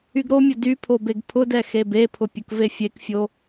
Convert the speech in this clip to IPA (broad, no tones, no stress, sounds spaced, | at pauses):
y ɡ ɾ o mʲ ʊ d y pʰ o b e ɡ pʰ ʊ d ɛ x e b e pʰ ʊ pʲ ʊ k v e fʲ e k fʲ o